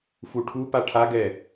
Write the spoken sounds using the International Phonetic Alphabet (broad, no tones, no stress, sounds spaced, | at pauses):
f u ʈʰ u p a ʈʰ a ɡ ɛː